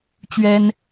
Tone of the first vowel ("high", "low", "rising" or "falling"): high